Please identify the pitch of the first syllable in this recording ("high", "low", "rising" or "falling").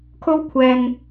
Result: high